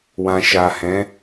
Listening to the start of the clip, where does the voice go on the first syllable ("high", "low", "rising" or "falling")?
low